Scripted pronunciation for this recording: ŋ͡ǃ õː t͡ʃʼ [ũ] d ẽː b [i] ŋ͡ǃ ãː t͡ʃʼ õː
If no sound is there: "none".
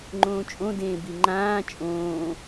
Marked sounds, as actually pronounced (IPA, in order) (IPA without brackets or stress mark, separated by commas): õ, i